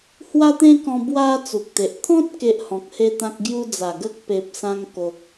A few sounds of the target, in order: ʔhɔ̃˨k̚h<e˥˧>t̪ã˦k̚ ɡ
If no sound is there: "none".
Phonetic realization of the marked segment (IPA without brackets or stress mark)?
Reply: e˦